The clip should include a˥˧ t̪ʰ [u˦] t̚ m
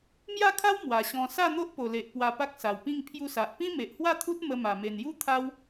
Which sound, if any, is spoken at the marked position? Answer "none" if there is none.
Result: u˦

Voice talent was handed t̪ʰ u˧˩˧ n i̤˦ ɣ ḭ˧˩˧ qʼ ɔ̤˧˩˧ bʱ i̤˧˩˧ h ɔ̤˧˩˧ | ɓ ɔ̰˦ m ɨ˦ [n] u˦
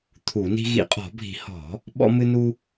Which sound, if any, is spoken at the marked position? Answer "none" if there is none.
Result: n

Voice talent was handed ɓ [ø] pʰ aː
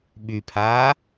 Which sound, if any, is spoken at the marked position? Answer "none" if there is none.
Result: y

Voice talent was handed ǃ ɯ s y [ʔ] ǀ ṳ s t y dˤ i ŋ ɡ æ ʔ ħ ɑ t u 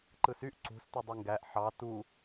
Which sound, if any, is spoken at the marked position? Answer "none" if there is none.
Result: ʔ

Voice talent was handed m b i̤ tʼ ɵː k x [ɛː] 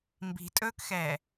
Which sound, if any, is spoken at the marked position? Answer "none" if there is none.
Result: ɛː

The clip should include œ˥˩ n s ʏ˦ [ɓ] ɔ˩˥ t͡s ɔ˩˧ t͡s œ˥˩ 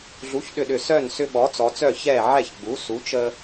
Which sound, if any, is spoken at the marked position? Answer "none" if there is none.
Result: ɓ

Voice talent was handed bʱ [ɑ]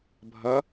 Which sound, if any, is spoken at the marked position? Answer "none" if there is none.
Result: ʌ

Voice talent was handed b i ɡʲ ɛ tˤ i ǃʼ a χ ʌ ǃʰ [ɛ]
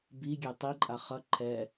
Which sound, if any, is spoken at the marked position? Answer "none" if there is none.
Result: ɛ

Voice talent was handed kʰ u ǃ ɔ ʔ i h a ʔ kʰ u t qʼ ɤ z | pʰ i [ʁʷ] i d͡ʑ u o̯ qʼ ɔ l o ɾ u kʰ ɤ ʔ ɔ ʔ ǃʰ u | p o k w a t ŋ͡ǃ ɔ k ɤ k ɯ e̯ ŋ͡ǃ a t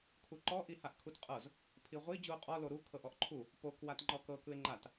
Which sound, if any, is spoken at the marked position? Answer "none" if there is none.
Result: ʁʷ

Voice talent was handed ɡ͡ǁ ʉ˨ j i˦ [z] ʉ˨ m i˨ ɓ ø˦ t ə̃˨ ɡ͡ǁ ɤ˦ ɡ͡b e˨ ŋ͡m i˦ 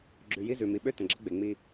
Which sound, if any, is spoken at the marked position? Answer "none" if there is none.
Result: z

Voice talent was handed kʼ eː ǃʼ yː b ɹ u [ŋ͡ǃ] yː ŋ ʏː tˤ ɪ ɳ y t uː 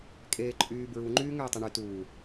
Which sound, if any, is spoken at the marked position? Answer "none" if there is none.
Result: ŋ͡ǃ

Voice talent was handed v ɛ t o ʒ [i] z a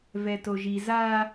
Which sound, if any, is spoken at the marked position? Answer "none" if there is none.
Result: i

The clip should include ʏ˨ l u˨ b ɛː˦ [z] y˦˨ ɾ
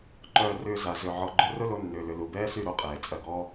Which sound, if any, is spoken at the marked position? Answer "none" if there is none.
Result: s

